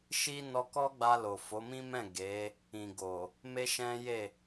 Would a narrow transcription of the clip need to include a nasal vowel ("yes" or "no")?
yes